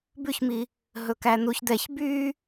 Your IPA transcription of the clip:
bʉçmi | ɦɵkænuç d̪ɛç by

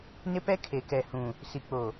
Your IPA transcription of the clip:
nɪ˦pɛ˦ kʰe˨kɛ˨hũ˨ | si˨k͡po˨

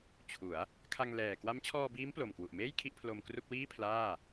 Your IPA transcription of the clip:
t͡ɕʰu˩˦a̯ | kʰa˧ŋlɛː˨˩ kwa˦˥mt͡ɕʰɔː˧biː˦˥m plo˨˩mkwu˨˩ʔmeː˥˩j kʰi˥˩ʔpʰlo˧mkru˥˩k̚ wiː˥˩pʰlaː˥˩

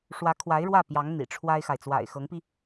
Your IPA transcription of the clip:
ʂwä˧˥kʰwa˧˥ɪ̯ ɻwä˥˩pjɑ˧˥ŋ n̪ḭ˨˩ʈ͡ʂʰwa˥ɪ̯xa˨ɪ̯ t͡swa̰˨˩ɪ̯xɤ˧˥ŋpi˧

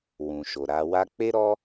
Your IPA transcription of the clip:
wũ˨ʃo˨ɾa˧wa˦ k͡pe˦ɾɔ˦

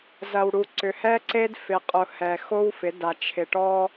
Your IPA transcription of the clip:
zɐ˨w ɽu˨ ǀʏ˨hɛ˦ ǀe˦dfɪ˨qʼʊ˨hɛ˨ xo˦wfɪ˨˦da˨ t͡ʃʰɪ˨ʈɔ˦

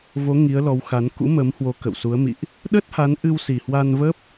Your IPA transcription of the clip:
vo˨˦ ŋi˨˦ə̯lɔ˨˦wxa˨˦n kṵ˧˥mə˨˦mhwo˨˦ kə̰˧˨wsu˨˦ə̯mḭ˧˨ʔ | ɗə˦˥t̚ha˨˦n ʔɨ˧wsi˨˩hwa˧nvə˦˥p̚

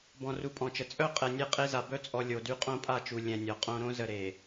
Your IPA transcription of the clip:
bɔ̃˨ru˨pʼɔ̃˨t͡ʃə˨ t͡sʼœ˦˨ qʼɛ˨nʲe˦qʼe˦za˨ bœ˦t͡sʼɔ˨ lʲo˨dy˦ qʼõ˦pʼa˦˨t͡ʃu˨ lʲɛ̃˨nʲɔ˨qʼõ˦ ɾõ˦ zə˨ ɾe˨

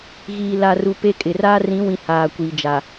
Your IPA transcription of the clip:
ɣiː˨la˨ru˨ pe˦kʼɪ˨ raː˦rĩ˨˦wĩ˨ haː˨kʷi˨d͡ʒa˨

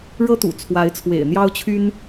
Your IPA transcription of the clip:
ɻɤ˦ t̪ṵ˨˩t͡sʰwa˨˦ɪ̯t͡sʰwḛ˨˩ɪ̯ n̪jɑ˦ʊ̯t͡ɕʰy˦n

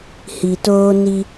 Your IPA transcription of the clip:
hi˨toː˦ ni˦

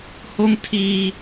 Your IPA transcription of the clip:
ho˦ŋ tʰiː˦

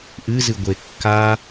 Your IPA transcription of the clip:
ʔɨzɨ ɡʷekːa

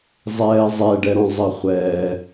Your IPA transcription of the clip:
zˤɛːzˤɛɖɛɾɔ̃ zˤɐχʷɛː

